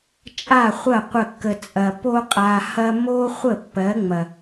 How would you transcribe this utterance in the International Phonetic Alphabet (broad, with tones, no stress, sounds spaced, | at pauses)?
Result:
t͡ʃʼ a˦˨ χʷ ɐ˦˨ qʷ ə˦˨ kː ə˧ t͡sʼ ɐ˧ p o˧ qʼ a˨ h ɐ˧ m o˦ χʷ ə˦˨ pː ɜ˨˦ ŋ͡m ɐ˨